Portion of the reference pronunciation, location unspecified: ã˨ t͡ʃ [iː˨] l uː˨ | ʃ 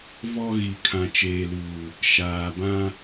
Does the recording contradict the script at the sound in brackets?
yes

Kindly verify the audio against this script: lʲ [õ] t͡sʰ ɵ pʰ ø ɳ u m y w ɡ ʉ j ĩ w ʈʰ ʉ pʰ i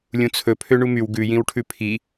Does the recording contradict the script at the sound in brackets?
yes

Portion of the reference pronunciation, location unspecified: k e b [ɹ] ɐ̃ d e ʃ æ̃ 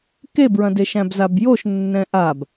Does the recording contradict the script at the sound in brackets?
no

